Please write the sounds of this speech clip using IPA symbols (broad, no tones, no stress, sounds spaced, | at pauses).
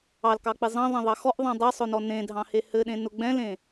ɑ l k ɑ k͡p i zˤ ɑ̃ ðˤ ɛ̃ ðˤ ɑ x ɔ ʔ ðˤ ɑ̃ dˤ ɛ sˤ ʊ n ɔ n ẽ dʱ ɑ̃ h e h ɘ ɗ ẽ n ʊ ɡ͡b ɛ̃ l ẽ